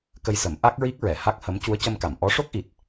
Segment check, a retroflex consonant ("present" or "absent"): present